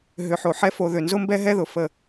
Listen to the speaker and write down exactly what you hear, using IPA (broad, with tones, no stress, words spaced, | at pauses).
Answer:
ɦʏ˨ħo˨ħɛ˦ fo˨ ðʏ˨nzʊ˦mbɛ˦ ɦɛ˦ðʊ˨fə˦˨